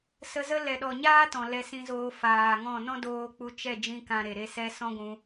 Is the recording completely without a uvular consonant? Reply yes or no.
yes